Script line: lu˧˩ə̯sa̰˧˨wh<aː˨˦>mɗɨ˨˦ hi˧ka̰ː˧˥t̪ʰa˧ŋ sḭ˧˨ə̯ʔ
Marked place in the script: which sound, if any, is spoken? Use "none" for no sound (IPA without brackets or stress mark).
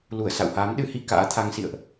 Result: aː˨˦